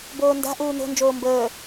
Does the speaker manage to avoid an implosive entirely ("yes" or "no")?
yes